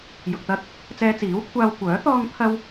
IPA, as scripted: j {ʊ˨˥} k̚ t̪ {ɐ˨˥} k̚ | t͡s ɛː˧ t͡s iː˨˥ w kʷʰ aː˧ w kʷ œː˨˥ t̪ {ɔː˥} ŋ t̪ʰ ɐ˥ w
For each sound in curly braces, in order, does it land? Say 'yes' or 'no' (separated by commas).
no, no, yes